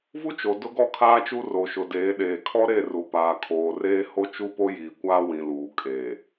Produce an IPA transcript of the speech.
v u˦ t͡ʃ o˨ d ʊ˦ ɡ ɔ˦ kʰ aː˦ t͡ʃ u˦ r o˨ ʃ ʊ˨ d eː˨˦ ɗ eː˨ kʰ ɔ˦ ɾ e˦˨ r u˨ p aː˨ kʰ oː˨ r eː˦ h o˦ t͡ʃ u˦ p o˦ j iː˨ kʷ aː˦ w ĩ˨ l uː˨ kʼ e˨

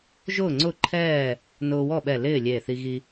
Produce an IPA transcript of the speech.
ʒ ʊː˥˨ ŋ͡ǀ ʊ˥˨ ǃʰ ɛː˥˨ | n ʊː˧ w ɔ˥˨ ɓ ɛ˧˩ l ɪː˥˨ lʲ e˧˩ θ i˧ ɣ i˧

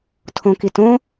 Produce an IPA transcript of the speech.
tʰ õ k i t õ

